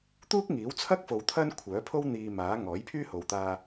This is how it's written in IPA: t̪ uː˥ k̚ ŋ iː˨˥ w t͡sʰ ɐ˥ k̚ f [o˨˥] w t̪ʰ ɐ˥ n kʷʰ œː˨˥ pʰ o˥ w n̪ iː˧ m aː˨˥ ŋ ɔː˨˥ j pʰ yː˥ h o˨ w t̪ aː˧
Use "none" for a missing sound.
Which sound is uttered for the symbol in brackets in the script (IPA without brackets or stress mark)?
o˨